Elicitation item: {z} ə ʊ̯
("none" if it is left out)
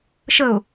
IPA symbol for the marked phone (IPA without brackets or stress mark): ʃ